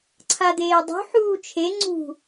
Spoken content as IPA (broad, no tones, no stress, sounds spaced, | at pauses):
ǀʰ a d̪ eː dˤ ṳ ħ uː t͡ʃʰ e ŋ͡ǀ ṳ